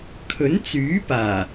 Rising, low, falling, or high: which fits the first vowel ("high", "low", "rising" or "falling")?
rising